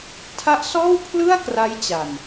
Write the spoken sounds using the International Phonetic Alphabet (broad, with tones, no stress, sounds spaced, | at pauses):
tʰ a˦˥ ʔ s ɔː˥˩ w pʰ l ɯ˥˩ a̯ k r a˦˥ j t͡ɕ a˨˩ n